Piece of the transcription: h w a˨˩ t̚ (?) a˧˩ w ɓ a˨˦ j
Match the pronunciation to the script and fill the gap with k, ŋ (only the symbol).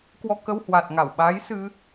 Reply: ŋ